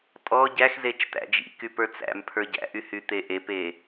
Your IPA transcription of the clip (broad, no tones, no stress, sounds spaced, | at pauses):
tʼ ɔ ɟ æ x z e t͡ʃ t̪ æ̰ d͡ʒ ḭ k y p ə˞ t͡s æ̰ m pʰ ə˞ ɟ æ̰ ʔ y h y t̪ e ʔ e p e